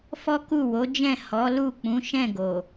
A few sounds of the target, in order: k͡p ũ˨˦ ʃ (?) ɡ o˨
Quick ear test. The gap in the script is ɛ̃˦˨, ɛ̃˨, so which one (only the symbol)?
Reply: ɛ̃˦˨